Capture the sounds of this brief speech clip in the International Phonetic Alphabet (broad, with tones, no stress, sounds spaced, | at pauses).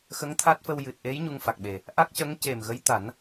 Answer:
x ə˧˥ ŋ t̪ʰ a˦˥ t̚ f ə˧ w j ɨ˨˩ t̚ ʔ e˧˥ j ɲ u˧ ŋ f a˨˩ k̚ ɓ e˨˩ | ʔ a˦˥ k̚ c ə˧˥ ŋ c e˨˩ m ɣ ə˧˥ j t̪ a˨˩˦ n